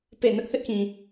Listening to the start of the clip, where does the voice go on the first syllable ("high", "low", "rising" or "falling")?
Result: falling